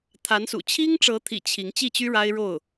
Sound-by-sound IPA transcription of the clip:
t̪ʰ a˧˥ n s ṵ˨˩ t͡ɕʰ i˥ ŋ ʈ͡ʂ ɤ˧˥ t̪ʰ ḭ˨˩ t͡ɕʰ i˧˥ ŋ t͡ɕ i˥˩ t͡ɕ y˥ ɻ a˥ ɪ̯ ɻ o˥˩ ʊ̯

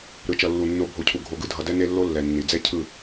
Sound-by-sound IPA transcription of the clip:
ɾ ɯ˨ t͡ʃ ʌ˨ lː u˨ nː o˨˦ bʱ o˨ cʰ u˨ ɡʱ o˨ ɡ ɯ˨ dʱ ʌ˨ d ɛ˦ n e˦ lː o˦ lː ɛ˨ nː i˨ d͡z ɛ˦ cʰ ɯ˦˨

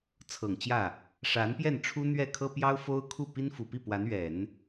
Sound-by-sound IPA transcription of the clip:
t͡sʰ ɤ˨˩ ŋ t͡ɕ j ä˥˩ | ʂ a˧˥ n p j ɛ˥˩ n ʈ͡ʂʰ u˥ n̪ ɥ ɛ˥˩ kʰ ɤ˥ p j ɑ˥ ʊ̯ f o˥ ʊ̯ kʰ u˥˩ p i˥ n f u˨˩ p i˥˩ p w a˧˥ n ɥ ɛ˨˩˦ n

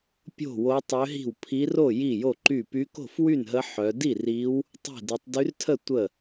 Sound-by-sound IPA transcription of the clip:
pʲ o̤˥˧ w o˦˥ tˤ ø˦˥ ɦ i̤˥˧ w pʰ i˦˥ r o˥˧ j i˥˧ j o˥˧ ǃ y˥˧ p y˦˥ k o̤˥˧ f w y˥˧ n ɦ ə˦˥ ħ œ˦˥ d i˥˧ r i˦˥ w | tˤ i̤˥˧ d ɛ˦˥ tˤ d y˦˥ r tʰ ə˥˧ tʷ ə˥˧

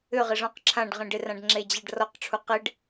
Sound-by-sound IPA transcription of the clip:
ʏ ʁ ɪ ʐ ɔ̃ q ǁʰ ã ɖ ʁ ẽ ɖ ɪ r ã ɖ ŋ͡ǁ e d͡ʑ a ɖ r ɔ q ʈ͡ʂʰ u q ɪ ɖ

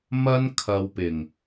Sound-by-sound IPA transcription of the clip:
m ɐ˥ n kʰ ɐ˧ w p ɪ˨ ŋ

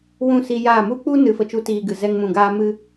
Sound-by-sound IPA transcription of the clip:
w ũ˦˨ s i˧ j aː˦˨ m u˦ k͡p u˦ n ɨ˨˦ f ə˨ t͡ʃ u˧ t iː˧ ɡ ɨ˨ z ɛ˧ ŋ m ũ˨ ɡ aː˦ m ɨ˦

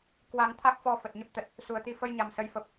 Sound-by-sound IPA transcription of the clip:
k w a˧ ŋ t̪ʰ a˦˥ k̚ f ɔ˧ f ə˨˩ t̚ ɲ ə˦˥ p̚ t̪ ə˨˩ t̚ | s u˨˩ ə̯ t̪ i˧ f ə˧ j ɲ a˨˩ m s ə˨˦ j f ə˨˩ p̚

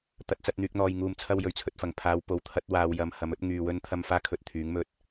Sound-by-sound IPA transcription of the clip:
t̪ ɐ˨˥ t̚ t͡s ɐ˧ t̚ n̪ yː˨ k̚ n̪ ɔː˨ j ŋ uː˨ m t͡sʰ ɐ˧ w j ɵ˨˩ ɥ t͡sʰ ɵ˨ t̚ f ɐ˨˩ ŋ pʰ aː˨˧ w p o˨˧ w t̪ʰ ɐ˨˥ t̚ w aː˧ w j ɐ˧ m h ɐ˨˧ m ɵ˨˥ t̚ ŋ yː˨ w ɵ˧ n t̪ʰ ɐ˧ m f aː˥ kʰ ɵ˧ t̚ t̪ʰ yː˨˥ ŋ m ɵ˧ t̚

